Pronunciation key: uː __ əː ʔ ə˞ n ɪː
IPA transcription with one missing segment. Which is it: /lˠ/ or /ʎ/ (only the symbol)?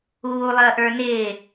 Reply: lˠ